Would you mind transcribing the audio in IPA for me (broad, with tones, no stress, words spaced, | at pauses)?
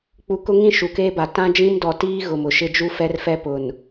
k͡pu˨kʊ˦ŋĩ˦˨ ʃu˨keː˦ba˨ tã˦d͡ʒĩ˦mdɔ˨ tiː˦ ɣʊ˨mʊ˨ʃɪ˦ d͡ʒu˦fɛ˦rfɛ˦pʊ˨n